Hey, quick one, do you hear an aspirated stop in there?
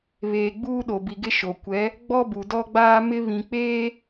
no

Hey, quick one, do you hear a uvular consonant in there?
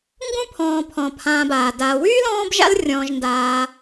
no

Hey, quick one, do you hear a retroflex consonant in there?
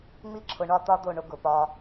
yes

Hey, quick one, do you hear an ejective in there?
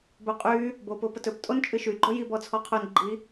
yes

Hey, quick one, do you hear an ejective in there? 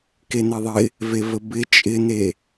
yes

